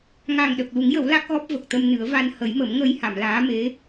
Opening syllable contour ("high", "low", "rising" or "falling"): low